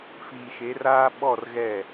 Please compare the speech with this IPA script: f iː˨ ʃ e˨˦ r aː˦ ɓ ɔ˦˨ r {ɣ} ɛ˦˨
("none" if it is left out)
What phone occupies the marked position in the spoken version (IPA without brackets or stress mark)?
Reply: ɣ